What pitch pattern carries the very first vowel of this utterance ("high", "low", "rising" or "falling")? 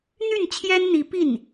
falling